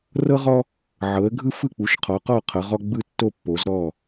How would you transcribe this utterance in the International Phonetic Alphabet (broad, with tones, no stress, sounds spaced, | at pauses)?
r ɤ˦ ʁ ɔ˦ | ʕ ɤ˨˦ ə̯ ɡʱ ɯ˦ f ɯ˥˨ k͡p u˨˦ ʃ qʰ ɔ˨˦ q ɔ˥˨ qʰ ɤ˨˦ ʁ ɔ˦ ɡ͡b ɯ˥˨ tː o˥˨ pː o˨˦ z ɾ ɔ˥˨